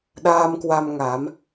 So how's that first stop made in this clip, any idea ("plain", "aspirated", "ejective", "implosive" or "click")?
implosive